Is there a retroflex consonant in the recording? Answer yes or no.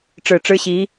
yes